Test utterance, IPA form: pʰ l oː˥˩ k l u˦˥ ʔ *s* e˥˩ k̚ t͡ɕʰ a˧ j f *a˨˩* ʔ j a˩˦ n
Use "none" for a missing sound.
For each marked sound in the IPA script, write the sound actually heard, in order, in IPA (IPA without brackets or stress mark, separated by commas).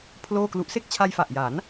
s, a˨˩